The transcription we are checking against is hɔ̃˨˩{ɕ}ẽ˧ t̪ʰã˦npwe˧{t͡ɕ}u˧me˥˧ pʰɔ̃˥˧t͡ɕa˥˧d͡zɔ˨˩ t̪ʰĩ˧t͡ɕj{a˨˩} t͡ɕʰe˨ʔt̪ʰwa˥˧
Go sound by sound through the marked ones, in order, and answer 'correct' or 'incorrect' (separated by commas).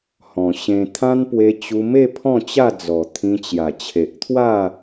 correct, correct, correct